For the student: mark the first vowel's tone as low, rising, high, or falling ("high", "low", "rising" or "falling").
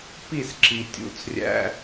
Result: falling